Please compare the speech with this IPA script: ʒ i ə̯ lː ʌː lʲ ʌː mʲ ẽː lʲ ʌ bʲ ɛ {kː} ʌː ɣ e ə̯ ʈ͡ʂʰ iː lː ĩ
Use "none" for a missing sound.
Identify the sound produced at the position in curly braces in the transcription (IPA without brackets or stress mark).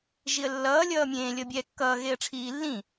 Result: kː